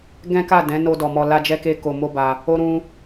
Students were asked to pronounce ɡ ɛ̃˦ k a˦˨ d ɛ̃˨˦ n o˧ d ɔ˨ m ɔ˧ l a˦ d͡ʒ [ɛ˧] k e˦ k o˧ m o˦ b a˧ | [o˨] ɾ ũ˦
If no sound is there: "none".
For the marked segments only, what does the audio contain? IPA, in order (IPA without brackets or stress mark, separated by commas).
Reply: ɛ˦, o˦